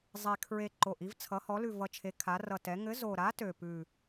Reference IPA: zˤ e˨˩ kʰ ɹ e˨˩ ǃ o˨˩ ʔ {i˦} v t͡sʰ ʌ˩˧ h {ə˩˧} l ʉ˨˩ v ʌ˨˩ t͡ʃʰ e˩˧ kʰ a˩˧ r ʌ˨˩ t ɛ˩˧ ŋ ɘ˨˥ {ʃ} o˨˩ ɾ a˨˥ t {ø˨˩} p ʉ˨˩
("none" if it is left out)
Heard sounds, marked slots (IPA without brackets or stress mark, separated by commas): i˦, ɔ˩˧, z, ø˨˩